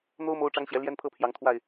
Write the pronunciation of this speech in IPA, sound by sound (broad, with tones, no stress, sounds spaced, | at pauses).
n̪ o˦ ʊ̯ m o˦ ʊ̯ ʈ͡ʂ ɑ˦ ŋ ɕ j ɛ˨˦ l j ɛ˦ n pʰ ɤ˦ pʰ j ɑ˨˦ ŋ t̪ʰ w a˥˨ ɪ̯